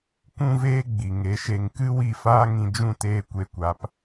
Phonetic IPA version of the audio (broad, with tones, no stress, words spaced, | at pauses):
kʷũ˦veː˦ ɡ͡bi˨ŋe˨˦ʃe˧ŋ kɨ˦wi˦˨faː˦ ŋĩ˧ d͡ʒũ˦˨teː˧ kʷe˧kʷa˨˦p